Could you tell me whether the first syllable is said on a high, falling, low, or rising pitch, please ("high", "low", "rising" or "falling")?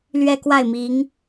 falling